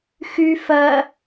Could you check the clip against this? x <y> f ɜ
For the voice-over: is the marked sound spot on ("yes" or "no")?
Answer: yes